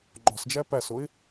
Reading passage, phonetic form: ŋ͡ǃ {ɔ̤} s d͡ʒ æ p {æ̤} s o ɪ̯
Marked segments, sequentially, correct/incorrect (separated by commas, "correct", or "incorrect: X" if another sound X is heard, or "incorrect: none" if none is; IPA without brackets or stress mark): correct, incorrect: æ